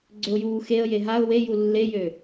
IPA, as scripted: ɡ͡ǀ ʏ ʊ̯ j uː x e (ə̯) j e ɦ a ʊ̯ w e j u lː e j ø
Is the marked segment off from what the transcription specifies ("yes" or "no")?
no